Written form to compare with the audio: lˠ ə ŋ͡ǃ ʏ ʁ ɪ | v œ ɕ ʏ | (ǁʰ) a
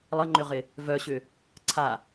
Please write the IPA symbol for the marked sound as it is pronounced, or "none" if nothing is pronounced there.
ǀʰ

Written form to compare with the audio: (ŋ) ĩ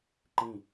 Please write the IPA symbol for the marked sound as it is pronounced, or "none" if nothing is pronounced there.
ǃ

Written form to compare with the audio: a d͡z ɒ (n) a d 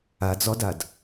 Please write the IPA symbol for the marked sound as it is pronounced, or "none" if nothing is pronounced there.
d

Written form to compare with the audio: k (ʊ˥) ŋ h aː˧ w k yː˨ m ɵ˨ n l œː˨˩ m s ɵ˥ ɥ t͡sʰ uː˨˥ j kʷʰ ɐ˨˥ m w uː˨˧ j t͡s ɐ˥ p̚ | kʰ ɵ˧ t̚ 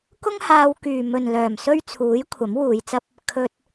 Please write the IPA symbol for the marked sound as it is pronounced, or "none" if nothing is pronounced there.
ʊ˥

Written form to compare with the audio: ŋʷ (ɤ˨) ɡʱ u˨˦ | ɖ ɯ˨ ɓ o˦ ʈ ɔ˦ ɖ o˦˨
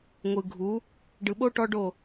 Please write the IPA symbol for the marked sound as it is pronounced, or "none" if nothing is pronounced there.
ɯ˨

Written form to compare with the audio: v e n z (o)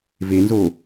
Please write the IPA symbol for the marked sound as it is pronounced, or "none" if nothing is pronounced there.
o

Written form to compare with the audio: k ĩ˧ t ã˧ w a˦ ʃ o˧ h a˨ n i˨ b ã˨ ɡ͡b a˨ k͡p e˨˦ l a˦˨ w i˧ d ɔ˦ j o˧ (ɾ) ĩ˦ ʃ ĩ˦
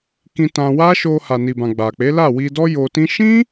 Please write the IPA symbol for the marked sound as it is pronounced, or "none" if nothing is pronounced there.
t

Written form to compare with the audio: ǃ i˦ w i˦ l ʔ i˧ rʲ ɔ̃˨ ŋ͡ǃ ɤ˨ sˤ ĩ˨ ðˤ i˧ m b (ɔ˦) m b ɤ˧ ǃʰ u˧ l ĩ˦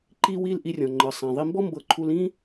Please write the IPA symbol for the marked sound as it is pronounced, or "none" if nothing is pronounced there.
ɔ˦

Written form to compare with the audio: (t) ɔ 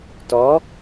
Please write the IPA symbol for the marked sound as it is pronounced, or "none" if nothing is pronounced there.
t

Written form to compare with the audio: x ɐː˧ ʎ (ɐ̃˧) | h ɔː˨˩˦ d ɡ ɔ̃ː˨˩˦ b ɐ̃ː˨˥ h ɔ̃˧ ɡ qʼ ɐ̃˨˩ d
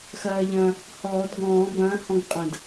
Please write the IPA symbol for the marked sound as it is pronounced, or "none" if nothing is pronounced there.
ɐ̃˧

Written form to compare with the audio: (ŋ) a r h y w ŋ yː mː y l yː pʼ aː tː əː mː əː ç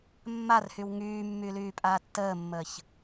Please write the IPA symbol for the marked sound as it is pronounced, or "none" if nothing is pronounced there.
mː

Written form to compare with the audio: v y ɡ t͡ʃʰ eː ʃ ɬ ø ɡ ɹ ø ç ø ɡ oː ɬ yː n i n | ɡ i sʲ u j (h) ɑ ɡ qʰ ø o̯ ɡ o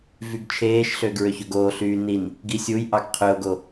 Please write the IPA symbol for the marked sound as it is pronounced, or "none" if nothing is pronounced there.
ʔ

